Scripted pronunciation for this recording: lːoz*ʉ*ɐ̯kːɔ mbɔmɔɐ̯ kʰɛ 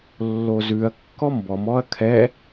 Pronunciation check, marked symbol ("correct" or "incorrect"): correct